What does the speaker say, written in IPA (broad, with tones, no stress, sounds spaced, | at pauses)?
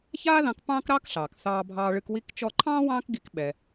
ç aː˥ ð ɑ̃˧ k p ɑ̃ː˥ k ɾ ɑː˥ k ɬ ɑː˩ k θ ɑː˧ bʱ ɑː˧ ɭ ɨ˧ k w i˧ k t͡ʃ ɔ˧ ǃʰ ɑ̃ː˥ w ɑ̃ː˥ k ɡ i˧ k ɓ ɛ˩